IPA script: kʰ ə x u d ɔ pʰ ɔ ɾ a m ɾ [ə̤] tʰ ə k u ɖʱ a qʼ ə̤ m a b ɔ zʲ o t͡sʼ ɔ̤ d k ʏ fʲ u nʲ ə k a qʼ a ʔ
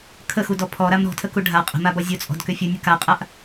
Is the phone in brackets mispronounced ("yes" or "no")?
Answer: yes